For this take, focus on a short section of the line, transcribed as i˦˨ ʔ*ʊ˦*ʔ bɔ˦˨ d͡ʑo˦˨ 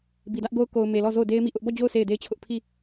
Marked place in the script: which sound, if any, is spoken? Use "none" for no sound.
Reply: ʊ˦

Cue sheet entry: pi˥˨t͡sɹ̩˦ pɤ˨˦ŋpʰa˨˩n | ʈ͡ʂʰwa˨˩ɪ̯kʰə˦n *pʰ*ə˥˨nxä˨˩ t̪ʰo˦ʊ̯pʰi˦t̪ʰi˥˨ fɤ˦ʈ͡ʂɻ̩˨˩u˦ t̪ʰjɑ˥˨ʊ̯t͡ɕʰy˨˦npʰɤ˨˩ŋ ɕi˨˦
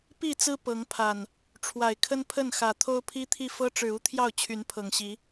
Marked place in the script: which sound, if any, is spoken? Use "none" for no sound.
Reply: pʰ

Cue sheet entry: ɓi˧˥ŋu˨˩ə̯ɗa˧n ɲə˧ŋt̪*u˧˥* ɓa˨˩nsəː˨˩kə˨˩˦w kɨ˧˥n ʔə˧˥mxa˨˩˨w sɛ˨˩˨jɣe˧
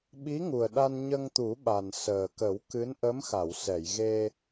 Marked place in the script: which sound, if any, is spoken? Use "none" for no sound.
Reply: u˨˩˦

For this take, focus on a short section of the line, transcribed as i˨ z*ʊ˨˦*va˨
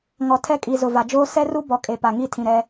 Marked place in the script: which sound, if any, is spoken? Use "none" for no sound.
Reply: ʊ˨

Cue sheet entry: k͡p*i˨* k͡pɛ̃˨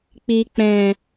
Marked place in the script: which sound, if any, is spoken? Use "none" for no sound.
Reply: i˨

